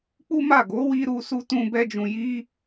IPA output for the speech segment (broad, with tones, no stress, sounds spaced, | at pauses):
k͡p u˦ m a˦˨ ɡ o˨˦ w i˧ ɾ u˧ s u˧ t ũ˧ b ɛ˦ d͡ʒ ũ˧ j i˦